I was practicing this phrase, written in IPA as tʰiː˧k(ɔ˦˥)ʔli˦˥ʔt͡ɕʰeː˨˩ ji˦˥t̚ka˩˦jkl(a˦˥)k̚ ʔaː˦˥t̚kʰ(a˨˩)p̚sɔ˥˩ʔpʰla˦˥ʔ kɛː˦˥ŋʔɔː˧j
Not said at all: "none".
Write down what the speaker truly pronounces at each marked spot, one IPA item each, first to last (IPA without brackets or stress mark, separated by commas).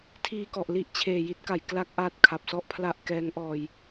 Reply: ɔ˨˩, a˦˥, a˨˩